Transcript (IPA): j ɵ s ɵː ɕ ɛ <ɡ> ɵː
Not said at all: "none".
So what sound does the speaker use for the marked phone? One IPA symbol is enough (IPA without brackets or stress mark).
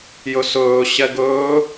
ɡ